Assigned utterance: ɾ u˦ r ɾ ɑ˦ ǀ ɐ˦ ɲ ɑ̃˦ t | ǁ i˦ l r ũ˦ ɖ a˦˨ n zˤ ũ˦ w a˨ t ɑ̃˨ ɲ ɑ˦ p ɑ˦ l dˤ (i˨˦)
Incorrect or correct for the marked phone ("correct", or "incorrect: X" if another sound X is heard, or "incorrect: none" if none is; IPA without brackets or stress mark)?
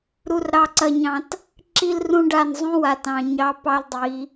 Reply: correct